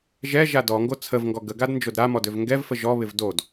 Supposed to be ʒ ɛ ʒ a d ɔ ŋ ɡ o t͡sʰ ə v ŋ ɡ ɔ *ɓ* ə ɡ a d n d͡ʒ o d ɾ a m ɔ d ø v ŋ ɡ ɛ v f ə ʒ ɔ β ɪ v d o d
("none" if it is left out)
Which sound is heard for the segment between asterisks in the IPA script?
ɡ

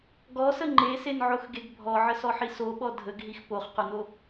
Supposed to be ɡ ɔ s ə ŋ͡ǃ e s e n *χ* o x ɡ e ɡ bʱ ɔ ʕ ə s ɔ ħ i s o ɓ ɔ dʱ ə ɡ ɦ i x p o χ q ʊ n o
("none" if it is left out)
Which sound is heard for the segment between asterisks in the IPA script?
ʕ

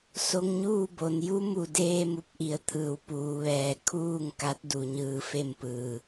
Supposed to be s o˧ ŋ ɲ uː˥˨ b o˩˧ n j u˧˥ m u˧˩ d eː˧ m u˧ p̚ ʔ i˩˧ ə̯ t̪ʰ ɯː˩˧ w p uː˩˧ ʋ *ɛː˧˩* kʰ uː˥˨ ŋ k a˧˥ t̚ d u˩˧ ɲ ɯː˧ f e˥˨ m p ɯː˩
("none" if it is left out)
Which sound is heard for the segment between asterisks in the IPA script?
ɛː˧˩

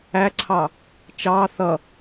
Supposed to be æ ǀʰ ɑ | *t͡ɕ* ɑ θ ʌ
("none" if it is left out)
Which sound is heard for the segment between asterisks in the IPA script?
t͡ʃ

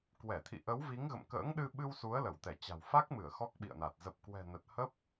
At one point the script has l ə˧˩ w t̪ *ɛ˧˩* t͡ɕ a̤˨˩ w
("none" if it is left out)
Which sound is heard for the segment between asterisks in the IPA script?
ɛ˧˩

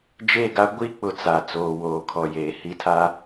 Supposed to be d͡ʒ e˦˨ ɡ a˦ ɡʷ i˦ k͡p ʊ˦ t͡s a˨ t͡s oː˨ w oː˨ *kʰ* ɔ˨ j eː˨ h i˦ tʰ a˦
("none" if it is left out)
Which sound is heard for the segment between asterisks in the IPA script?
kʰ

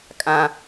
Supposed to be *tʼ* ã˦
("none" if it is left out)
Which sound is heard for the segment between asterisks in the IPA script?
kʼ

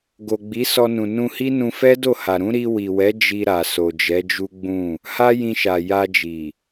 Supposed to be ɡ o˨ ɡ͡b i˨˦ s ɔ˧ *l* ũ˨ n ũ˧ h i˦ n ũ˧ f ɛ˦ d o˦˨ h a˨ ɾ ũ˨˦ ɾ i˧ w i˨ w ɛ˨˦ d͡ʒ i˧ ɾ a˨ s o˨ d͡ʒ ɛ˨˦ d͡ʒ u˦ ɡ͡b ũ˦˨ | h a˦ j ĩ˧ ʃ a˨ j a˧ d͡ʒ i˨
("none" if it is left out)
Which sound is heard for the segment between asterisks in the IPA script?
n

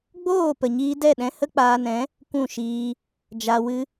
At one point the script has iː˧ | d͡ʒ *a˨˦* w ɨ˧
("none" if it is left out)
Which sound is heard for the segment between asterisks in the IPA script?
a˨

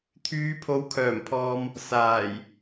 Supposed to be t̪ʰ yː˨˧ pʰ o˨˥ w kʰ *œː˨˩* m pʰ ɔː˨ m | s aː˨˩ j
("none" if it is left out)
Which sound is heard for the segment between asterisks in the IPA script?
œː˨˩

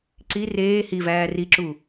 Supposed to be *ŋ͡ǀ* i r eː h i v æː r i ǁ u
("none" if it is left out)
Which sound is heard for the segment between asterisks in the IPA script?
ǀ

